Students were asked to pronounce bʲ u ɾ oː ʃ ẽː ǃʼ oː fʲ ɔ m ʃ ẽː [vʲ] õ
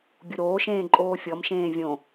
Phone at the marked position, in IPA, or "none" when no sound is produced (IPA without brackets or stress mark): vʲ